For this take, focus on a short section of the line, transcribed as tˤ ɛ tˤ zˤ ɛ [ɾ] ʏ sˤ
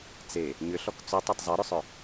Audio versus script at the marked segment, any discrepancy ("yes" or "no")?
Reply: no